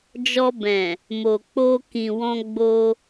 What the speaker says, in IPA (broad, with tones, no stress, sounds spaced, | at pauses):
d͡ʒ ɔ˧ b ɛ̃˨ | m o˨ k͡p o˧ k ĩ˨ w ɔ̃˧ ɡ͡b o˧